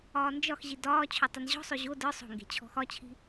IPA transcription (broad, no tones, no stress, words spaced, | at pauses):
ɒːnd͡ʒɒxʑi dɒː t͡ɕʰotˤenʑɔ̤sˤø ʑo də˞ sˤo̤ŋɡe̤ t͡ɕʰɔ̤xɒt͡ɕʰi̤